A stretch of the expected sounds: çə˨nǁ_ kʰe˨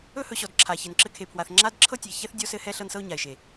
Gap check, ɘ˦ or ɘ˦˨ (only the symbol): ɘ˦